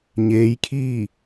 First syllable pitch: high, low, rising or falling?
rising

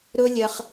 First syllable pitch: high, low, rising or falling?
high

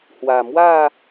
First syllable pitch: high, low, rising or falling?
low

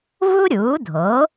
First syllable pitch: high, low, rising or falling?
high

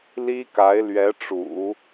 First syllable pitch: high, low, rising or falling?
high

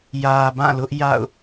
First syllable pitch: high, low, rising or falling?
low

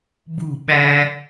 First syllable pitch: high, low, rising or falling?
falling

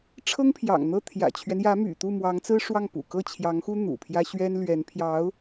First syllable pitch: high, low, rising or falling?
high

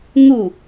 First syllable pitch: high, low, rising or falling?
falling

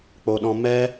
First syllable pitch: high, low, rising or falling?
low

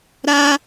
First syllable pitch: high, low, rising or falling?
high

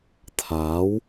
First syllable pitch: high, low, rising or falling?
rising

